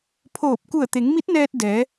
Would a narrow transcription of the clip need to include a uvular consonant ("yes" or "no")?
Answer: no